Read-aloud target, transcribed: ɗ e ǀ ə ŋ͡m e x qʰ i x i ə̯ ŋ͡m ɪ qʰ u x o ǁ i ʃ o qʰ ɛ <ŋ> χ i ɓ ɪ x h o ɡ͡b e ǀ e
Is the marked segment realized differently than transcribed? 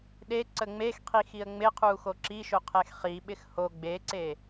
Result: yes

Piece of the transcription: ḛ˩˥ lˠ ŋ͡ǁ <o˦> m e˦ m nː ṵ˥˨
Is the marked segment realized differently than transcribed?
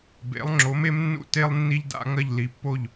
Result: yes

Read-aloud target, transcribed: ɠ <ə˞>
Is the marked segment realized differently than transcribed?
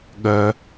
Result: yes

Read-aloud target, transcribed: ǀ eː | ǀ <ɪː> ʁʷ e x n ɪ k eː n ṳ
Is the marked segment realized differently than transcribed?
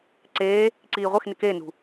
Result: yes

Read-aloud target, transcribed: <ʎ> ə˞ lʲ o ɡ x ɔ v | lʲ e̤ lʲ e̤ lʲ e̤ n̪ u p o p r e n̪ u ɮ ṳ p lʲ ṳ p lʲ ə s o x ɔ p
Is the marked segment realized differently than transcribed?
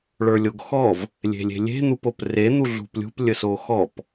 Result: yes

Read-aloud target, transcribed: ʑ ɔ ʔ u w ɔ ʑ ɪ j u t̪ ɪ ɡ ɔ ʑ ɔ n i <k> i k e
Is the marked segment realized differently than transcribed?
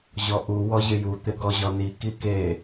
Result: no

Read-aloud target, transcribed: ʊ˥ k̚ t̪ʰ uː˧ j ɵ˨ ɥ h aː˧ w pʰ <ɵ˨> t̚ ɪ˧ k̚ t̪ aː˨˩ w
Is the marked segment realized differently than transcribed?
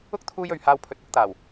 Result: yes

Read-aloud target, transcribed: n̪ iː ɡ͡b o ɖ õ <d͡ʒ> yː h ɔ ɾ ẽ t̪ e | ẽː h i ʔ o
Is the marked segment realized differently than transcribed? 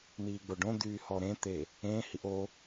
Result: yes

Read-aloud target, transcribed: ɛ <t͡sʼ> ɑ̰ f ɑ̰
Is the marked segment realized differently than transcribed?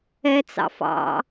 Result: yes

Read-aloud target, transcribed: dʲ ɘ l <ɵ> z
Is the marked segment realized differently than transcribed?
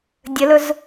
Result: no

